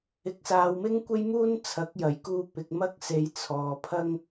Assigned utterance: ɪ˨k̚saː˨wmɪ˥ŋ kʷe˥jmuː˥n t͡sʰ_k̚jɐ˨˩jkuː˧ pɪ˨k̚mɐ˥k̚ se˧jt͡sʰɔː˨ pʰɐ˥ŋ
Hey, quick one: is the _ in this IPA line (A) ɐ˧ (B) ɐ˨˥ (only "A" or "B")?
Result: B